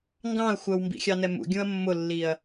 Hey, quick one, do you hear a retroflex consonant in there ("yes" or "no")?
no